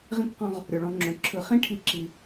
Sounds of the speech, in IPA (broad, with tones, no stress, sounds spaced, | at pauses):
ʁ ĩ˦ k q ɔ̃˧ ʁ | ɾʲ o˨ ɭ ɔ̃˧ ŋ͡ǁ õ˨ ǁʰ ɯ˨ χ ĩ˦ ʈʰ i˦ ǁ i˧